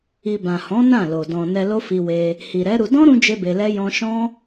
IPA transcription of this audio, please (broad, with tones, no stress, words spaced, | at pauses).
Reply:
i˨bã˨hɔ̃˨˦ nã˦˨lo˨ dɔ̃˨ nɛ˧lo˦fi˧ we˧ | hi˨ɾɛ˨˦ ɾu˧ dɔ̃˦ɾũ˧ d͡ʒe˦be˧lɛ˦ jɔ̃˧ʃɔ̃˦